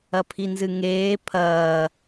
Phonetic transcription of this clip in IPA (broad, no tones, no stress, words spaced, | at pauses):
ɐpʰinzɨŋeː pʰɐː